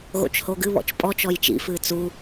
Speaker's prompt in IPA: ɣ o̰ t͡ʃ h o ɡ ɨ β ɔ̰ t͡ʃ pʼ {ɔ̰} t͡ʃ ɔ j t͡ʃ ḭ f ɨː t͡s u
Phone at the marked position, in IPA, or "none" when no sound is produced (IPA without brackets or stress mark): ɔ